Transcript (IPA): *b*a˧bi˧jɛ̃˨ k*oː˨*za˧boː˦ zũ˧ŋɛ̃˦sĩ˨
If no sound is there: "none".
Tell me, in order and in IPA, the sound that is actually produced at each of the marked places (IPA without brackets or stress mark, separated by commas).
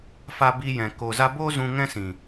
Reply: f, oː˨